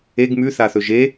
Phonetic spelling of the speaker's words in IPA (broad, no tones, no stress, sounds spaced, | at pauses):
e ɡ m ʉ θ a θ ɵ ʒ e